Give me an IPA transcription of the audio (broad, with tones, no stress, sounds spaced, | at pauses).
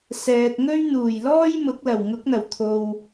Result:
s ɛː˨ t̚ ŋ ɵ˥ ɥ n̪ uː˨˩ j l ɔː˥ j m ʊ˨˥ k̚ l ɐ˨˩ w ŋ ʊ˨˥ k̚ n̪ ɐ˨˩ w t̪ʰ o˨ w